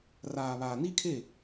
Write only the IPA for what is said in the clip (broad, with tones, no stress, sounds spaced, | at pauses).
r aː˨ β aː˨ n i˦ kʰ e˦˨